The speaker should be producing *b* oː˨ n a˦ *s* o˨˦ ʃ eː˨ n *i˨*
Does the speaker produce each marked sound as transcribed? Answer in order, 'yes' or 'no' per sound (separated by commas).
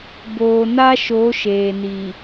yes, no, yes